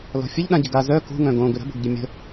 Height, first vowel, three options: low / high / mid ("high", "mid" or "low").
mid